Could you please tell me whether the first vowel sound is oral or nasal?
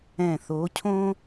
nasal